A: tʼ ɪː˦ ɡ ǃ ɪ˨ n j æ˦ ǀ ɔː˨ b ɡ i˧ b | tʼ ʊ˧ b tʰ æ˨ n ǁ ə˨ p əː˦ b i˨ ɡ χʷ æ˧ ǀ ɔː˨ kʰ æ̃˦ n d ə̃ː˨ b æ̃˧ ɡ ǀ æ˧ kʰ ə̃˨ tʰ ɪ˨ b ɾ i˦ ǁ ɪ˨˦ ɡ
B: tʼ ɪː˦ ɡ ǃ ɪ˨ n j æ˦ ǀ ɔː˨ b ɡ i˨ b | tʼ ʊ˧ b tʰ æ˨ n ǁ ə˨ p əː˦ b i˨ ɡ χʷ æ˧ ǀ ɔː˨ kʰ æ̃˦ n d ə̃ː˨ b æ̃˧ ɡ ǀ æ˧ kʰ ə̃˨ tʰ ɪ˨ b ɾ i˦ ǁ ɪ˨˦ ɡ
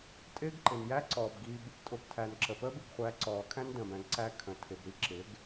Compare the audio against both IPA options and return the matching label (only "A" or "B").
A